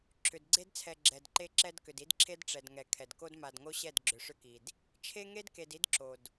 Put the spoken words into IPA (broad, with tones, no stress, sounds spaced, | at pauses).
ǁʰ ʏ˨ d ɡ͡ǀ e˦ d t͡sʰ ɛ˨ ɡ͡ǁ ɛ˨ d ǃ e˦ ǁ ɛ˦ d k ʏ˨ d i˦ d ǁʰ e˦ d ʈ͡ʂ ɛ˨ d ŋ ɛ˨ kʰ ɛ˨ d k o˦ d m a˨ d ŋ o˦ ɕ ɛ˦˨ d ɡ͡ǁ ʏ˨ ʂ ʏ˦ k i˨ d | t͡ʃʰ e˦ ŋ e˦ d k e˨ d i˦ d ǁ o˨ d